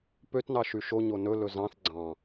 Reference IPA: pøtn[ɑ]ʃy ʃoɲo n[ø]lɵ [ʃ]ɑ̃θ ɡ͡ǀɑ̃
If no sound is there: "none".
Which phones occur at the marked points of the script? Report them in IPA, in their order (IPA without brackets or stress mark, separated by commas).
ɑ, ɵ, z